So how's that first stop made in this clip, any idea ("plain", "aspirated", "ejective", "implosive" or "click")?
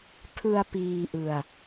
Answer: aspirated